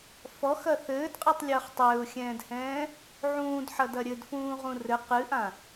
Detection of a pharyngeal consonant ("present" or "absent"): present